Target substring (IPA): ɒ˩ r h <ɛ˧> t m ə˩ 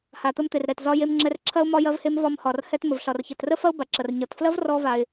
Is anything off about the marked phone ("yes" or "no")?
no